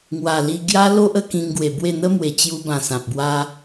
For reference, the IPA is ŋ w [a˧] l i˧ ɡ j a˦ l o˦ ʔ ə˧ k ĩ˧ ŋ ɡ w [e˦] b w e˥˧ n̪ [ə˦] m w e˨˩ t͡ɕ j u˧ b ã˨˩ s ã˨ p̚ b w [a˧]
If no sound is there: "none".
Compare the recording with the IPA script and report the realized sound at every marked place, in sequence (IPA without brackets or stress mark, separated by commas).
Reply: a˨˩, e˨˩, ə˦, a˦